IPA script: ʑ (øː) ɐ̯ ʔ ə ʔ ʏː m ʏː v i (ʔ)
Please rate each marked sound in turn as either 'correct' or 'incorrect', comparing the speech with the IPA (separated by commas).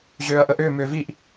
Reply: correct, correct